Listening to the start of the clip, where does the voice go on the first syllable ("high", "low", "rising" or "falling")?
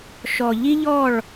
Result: low